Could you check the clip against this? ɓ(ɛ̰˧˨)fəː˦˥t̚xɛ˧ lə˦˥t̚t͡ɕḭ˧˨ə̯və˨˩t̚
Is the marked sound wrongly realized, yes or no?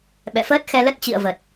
no